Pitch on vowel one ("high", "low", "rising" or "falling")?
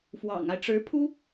low